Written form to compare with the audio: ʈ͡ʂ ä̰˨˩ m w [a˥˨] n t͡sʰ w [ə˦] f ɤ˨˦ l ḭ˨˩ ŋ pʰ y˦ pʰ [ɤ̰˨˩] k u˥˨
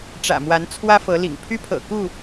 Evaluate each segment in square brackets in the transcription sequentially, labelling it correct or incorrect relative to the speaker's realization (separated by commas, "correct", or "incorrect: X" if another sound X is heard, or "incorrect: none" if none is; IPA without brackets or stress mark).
incorrect: a˨˦, incorrect: ä˦, correct